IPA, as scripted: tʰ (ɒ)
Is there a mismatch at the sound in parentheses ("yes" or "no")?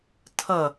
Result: yes